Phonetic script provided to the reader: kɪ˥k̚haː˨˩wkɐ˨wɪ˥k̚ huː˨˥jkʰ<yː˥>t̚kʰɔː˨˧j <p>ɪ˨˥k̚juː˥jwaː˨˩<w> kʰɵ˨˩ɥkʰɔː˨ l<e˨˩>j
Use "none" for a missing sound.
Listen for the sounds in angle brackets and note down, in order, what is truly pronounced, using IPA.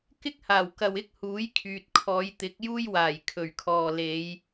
yː˨, t̪, j, e˨˧

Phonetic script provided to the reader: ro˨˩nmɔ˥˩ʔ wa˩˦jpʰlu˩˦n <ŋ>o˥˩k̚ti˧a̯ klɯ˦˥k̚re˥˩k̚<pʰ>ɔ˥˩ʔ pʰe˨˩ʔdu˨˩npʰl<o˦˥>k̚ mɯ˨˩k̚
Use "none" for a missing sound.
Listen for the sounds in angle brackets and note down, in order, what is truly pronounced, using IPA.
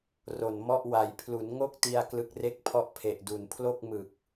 ŋ, pʰ, o˥˩

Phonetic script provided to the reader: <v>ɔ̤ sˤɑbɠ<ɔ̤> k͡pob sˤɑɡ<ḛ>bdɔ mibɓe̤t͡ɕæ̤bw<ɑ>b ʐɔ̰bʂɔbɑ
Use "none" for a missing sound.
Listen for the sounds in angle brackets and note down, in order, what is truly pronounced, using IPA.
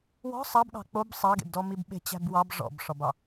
w, ɑ̤, ḛ, ɑ

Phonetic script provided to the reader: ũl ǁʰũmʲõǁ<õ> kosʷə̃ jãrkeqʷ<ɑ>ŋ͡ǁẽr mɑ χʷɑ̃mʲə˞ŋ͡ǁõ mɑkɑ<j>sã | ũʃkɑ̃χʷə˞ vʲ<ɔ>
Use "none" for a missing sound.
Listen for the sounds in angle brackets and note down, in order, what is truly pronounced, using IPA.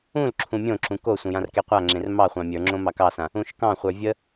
ũ, a, none, ə

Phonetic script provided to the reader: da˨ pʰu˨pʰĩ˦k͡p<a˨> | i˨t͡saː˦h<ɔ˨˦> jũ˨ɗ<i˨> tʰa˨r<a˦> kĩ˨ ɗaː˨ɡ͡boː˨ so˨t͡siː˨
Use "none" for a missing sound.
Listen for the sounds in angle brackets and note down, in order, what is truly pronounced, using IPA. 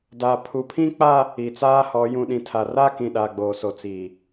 a˦, ɔ˨˦, ĩ˨, a˦

